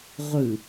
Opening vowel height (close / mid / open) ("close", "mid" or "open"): close